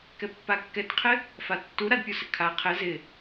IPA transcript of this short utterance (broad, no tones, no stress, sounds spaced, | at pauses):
k ɛ pː a kː ɛ t qʰ ɪ | f a tː u ɾ a d pʲ u s ɪ kʰ a qʰ ɪ z ɪ